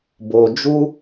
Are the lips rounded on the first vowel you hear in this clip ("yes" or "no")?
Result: yes